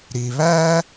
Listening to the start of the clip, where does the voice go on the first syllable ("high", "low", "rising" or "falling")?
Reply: low